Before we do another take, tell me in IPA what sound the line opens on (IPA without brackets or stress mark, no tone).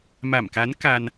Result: m